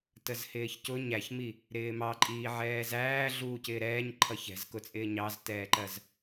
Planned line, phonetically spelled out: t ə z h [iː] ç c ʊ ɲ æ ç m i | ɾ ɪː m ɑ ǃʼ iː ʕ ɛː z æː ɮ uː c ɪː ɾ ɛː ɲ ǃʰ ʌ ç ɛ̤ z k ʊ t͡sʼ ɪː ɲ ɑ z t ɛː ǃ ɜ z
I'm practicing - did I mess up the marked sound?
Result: yes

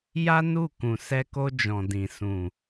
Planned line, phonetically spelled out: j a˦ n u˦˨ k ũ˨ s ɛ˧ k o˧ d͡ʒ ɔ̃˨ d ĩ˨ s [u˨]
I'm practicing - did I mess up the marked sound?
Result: yes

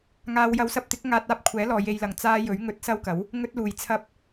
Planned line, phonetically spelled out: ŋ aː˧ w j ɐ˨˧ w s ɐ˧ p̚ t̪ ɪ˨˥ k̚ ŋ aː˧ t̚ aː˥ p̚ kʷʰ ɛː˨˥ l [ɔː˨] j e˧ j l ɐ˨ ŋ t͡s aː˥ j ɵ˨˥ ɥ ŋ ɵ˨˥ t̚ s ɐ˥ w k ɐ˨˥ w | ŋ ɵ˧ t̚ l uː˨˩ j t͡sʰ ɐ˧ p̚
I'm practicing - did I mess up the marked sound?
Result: no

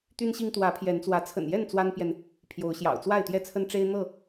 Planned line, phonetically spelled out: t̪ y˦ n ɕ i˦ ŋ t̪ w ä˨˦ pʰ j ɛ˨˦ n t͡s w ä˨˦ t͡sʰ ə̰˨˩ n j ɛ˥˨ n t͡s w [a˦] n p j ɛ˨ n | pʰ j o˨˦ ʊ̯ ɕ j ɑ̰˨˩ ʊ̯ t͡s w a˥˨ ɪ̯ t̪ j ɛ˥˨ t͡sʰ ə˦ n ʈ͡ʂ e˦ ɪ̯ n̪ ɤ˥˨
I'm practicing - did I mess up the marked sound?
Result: no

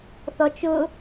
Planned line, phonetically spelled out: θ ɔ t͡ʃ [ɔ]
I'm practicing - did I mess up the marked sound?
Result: yes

